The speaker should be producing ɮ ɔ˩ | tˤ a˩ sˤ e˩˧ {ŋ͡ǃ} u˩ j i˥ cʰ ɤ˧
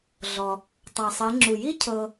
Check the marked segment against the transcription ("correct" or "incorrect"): incorrect